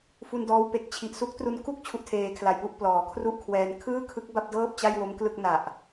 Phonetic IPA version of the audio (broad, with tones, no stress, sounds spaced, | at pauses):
f u˧ n d ɔː˦˥ w p e˨˩ k̚ t͡ɕʰ i˨˩ ʔ s u˦˥ k̚ t r u˧ n k u˥˩ k̚ t͡ɕʰ u˥˩ ʔ tʰ eː˧ kʰ l a˨˩ j p u˥˩ ʔ p l ɔː˩˦ kʰ r u˥˩ ʔ kʰ w ɛː˧ n kʰ ɯː˥˩ kʰ ɯ˦˥ k̚ b a˥˩ p̚ d ɤː˥˩ p̚ t͡ɕ a˥˩ j w o˦˥ m k l ɯ˥˩ k̚ n a˨˩ ʔ